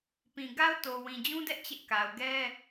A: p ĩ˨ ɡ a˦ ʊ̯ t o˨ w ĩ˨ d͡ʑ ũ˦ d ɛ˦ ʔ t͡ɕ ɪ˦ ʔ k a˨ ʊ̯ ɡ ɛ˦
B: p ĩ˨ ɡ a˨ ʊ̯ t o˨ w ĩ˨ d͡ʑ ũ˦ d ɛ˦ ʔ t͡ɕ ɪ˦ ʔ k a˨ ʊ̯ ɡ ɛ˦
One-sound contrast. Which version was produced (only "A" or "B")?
A